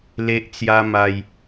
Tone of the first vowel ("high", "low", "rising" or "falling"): high